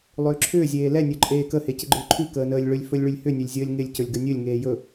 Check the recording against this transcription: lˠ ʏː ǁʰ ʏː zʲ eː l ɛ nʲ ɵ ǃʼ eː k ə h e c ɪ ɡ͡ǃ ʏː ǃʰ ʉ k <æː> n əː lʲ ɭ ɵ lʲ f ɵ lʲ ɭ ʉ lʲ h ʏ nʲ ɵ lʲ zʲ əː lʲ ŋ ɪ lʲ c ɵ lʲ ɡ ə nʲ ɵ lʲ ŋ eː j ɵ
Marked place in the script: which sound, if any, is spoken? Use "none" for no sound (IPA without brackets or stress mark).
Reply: əː